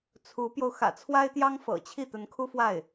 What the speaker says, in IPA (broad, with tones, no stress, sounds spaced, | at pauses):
t͡sʰ u˧˥ p j o˧ ʊ̯ x ä̰˨˩ t͡sʰ w a˥ ɪ̯ t̪ j ɑ˥ ŋ f ɤ̰˨˩ t͡ɕʰ i˥˩ t̪ ə˧˥ n kʰ u˥ f w a˥˩ ɪ̯